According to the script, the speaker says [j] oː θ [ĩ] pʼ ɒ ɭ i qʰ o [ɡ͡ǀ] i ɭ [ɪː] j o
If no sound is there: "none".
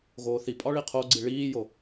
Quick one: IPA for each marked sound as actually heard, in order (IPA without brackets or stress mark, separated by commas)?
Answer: ɣ, i, ɡ͡ǀ, iː